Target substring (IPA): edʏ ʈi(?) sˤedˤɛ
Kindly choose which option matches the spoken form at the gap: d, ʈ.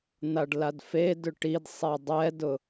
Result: d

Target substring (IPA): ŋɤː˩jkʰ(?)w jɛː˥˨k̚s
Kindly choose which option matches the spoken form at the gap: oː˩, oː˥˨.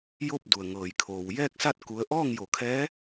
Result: oː˩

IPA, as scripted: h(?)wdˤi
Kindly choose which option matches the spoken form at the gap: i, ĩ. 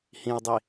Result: ĩ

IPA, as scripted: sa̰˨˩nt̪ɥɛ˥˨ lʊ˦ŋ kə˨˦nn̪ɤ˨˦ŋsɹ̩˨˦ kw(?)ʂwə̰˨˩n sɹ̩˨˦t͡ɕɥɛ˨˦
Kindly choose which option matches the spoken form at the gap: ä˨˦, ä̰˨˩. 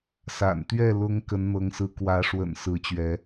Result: ä˨˦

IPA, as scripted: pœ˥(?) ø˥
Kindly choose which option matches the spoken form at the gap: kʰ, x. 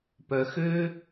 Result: x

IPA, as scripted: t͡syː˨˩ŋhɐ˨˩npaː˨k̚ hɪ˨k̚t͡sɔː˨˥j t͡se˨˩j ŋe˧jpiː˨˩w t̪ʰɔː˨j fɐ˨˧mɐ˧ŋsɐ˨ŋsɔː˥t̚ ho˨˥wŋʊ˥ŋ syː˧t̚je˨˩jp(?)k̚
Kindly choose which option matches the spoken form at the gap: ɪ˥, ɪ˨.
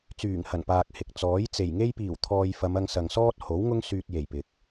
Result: ɪ˨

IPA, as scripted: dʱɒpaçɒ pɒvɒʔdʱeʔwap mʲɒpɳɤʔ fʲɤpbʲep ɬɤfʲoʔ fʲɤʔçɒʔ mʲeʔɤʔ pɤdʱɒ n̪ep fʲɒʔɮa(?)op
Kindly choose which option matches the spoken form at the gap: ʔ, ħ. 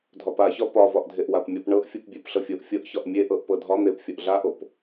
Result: ʔ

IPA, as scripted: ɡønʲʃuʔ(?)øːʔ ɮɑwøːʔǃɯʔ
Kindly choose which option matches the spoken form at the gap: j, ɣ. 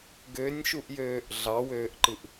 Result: j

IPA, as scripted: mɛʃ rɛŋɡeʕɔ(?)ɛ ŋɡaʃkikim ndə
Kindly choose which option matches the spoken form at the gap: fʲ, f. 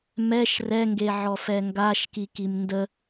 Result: f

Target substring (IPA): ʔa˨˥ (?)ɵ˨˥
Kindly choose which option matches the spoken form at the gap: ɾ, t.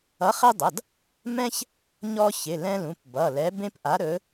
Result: ɾ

